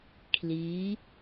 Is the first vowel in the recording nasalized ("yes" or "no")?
no